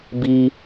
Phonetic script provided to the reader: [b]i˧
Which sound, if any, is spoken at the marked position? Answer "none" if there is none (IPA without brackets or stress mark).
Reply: b